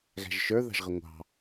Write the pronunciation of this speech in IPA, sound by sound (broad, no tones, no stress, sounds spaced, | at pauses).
ɣ æ̤ ʒ ʃ ə˞ ð ɑ̤ ʒ ʁ ə ŋʷ ɑ̤